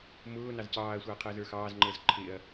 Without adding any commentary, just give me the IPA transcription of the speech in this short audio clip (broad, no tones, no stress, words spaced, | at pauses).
mʊː nɑzcɑːɐ̯sʷɑɐ̯ qʰəːzə˞xɑːzŋ͡ǃəːz ǃʰɪɐ̯